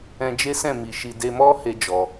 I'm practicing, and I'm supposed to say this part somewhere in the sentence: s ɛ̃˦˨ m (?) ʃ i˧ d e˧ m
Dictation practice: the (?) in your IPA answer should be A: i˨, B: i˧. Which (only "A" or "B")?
B